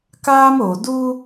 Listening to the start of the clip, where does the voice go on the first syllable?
high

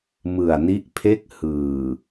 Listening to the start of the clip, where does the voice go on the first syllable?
low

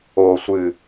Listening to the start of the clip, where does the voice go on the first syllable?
low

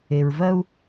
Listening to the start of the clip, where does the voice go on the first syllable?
low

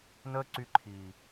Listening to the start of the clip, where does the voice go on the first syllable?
high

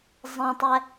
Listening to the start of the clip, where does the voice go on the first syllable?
low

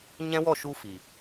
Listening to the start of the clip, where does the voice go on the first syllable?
high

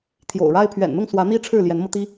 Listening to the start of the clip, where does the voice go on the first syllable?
low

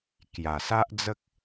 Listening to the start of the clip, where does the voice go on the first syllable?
low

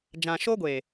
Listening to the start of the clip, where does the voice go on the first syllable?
low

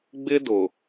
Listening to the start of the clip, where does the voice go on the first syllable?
high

